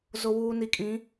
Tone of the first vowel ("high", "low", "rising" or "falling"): low